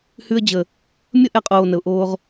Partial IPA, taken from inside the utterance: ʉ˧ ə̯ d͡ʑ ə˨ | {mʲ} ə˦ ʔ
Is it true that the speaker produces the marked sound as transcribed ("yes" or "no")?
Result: yes